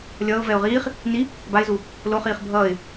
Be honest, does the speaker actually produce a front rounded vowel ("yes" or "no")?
no